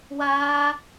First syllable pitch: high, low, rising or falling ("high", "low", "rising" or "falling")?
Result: high